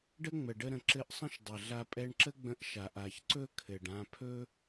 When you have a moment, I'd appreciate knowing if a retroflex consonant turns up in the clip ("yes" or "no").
yes